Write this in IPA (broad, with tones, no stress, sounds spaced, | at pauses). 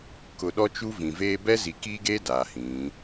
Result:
k ʊ˨ ɗ ɔ˦ t͡ʃ u˦ v ĩ˨ v eː˦ b ɛ˦ z i˨ k iː˦ ɡ eː˦ d aː˨ h ĩ˨˦